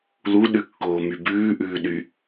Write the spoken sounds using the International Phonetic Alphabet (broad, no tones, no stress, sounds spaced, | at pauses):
l u ɗ ʉ kː oː m y b ʉː ʔ ʉː ɗ y